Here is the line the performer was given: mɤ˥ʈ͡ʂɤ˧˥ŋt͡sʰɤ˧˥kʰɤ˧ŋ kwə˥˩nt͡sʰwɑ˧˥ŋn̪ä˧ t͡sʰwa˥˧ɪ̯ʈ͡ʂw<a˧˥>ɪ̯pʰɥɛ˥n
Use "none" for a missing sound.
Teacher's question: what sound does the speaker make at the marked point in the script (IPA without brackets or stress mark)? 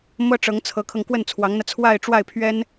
a˥˩